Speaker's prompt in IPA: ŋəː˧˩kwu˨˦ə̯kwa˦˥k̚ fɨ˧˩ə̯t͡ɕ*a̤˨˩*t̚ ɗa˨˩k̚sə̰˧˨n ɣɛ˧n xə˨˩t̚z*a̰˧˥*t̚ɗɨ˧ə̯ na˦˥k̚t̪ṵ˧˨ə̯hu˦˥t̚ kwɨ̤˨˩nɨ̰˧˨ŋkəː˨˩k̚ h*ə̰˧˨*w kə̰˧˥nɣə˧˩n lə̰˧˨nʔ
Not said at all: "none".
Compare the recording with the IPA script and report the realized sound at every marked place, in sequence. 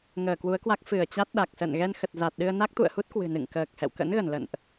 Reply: a˦˥, a˨˩, ɛ̰˧˨

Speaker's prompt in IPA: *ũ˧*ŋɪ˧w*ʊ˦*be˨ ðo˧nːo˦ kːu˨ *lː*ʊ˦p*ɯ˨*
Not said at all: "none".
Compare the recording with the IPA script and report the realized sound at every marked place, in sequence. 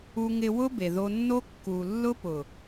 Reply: u˧, ʊ˦, lː, ʊ˨

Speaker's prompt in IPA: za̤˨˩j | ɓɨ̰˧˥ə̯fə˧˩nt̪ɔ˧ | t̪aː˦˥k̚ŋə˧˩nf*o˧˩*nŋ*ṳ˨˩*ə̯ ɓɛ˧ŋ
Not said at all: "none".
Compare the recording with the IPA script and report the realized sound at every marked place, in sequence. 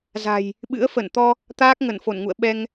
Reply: o˧˩, ṵ˧˨

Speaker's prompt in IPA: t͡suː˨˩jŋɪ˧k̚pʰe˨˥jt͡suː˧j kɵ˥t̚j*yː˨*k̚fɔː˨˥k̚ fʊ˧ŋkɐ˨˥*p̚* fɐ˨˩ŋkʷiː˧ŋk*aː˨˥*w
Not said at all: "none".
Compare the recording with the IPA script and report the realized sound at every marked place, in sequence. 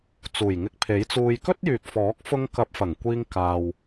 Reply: yː˨, p̚, aː˨

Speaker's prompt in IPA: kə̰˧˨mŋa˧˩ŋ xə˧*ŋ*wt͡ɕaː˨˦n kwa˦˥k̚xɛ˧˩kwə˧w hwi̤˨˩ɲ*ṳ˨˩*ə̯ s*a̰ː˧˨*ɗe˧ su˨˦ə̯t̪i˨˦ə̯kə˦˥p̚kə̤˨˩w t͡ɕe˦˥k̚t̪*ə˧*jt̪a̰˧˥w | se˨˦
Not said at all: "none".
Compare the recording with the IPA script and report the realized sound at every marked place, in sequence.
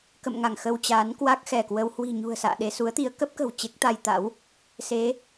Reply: none, ṳ˨˩, a̰ː˧˨, a˧

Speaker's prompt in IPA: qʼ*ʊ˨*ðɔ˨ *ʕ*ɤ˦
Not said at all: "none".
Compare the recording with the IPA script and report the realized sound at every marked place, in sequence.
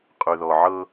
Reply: ʉ˨, ʕ

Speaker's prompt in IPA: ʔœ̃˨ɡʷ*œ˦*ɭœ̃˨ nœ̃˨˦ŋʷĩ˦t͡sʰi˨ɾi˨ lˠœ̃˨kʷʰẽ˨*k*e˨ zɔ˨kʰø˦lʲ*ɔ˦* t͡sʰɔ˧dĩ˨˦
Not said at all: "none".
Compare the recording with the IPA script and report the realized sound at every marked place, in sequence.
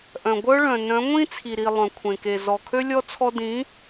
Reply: œ˦, k, ɔ˦

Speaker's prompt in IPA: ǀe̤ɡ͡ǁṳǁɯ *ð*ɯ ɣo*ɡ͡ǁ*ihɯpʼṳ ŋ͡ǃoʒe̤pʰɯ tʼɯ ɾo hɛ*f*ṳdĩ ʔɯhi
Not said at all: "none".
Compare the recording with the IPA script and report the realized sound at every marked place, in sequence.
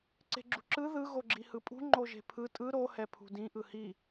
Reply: ð, ɡ͡ǁ, pʰ

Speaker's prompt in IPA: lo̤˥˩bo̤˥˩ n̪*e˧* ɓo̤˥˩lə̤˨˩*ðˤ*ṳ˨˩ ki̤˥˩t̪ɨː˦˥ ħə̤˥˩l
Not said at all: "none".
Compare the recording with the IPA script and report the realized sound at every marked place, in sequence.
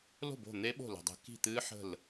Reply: e˦˥, dˤ

